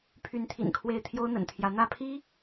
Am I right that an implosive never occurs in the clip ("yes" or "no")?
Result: yes